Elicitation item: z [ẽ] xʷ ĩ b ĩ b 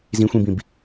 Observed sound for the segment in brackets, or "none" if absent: ĩ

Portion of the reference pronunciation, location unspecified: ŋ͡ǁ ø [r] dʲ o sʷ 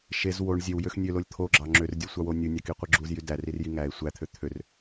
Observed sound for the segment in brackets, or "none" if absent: r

